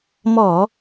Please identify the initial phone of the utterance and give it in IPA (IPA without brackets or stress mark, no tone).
m